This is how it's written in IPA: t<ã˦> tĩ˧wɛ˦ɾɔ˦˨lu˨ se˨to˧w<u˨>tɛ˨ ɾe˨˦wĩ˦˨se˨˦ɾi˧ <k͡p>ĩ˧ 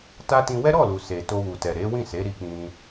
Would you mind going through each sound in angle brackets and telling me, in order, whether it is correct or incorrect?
incorrect, correct, correct

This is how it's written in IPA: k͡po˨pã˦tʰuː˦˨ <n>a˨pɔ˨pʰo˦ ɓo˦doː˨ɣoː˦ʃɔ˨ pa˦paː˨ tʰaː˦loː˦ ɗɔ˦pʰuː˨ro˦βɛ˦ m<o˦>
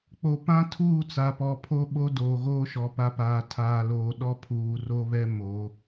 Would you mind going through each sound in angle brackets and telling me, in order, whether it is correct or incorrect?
incorrect, incorrect

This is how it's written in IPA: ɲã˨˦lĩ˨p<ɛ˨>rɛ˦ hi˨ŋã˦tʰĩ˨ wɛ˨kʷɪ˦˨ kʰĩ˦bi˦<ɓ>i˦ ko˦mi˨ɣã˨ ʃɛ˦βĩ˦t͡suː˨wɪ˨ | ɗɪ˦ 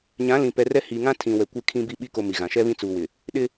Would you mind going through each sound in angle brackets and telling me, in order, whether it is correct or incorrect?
correct, correct

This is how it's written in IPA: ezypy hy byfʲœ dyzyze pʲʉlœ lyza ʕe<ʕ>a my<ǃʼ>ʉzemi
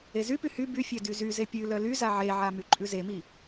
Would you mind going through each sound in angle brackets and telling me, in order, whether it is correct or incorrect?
correct, correct

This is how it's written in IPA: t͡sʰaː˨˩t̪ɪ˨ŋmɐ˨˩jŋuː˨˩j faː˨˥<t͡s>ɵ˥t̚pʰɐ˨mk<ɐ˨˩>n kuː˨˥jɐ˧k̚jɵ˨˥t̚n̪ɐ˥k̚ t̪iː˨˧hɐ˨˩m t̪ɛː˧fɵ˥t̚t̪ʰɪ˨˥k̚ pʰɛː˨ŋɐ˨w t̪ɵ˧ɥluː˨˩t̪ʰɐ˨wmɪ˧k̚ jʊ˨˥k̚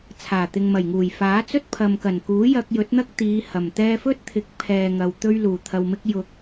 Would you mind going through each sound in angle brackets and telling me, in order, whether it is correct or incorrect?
correct, correct

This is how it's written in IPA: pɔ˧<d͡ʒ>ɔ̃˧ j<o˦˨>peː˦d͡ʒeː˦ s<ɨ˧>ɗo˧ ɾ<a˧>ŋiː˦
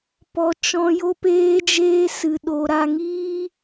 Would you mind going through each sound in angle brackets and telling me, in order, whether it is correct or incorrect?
incorrect, incorrect, correct, correct

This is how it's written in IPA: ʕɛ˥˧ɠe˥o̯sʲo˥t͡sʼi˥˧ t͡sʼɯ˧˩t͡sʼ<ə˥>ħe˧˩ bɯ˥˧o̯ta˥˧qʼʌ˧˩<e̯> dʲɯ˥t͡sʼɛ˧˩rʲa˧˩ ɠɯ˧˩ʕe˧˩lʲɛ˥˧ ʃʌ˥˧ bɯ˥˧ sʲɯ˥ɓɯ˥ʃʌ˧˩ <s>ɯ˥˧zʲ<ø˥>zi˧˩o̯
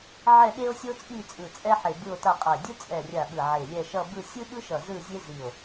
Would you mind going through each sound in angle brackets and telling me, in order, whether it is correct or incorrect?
incorrect, correct, incorrect, incorrect

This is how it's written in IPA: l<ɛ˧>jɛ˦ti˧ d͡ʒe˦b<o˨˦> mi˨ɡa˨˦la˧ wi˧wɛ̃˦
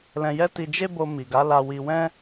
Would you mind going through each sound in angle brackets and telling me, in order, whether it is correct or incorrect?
incorrect, incorrect

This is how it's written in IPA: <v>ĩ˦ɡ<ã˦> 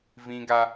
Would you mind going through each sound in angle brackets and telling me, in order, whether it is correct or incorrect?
correct, incorrect

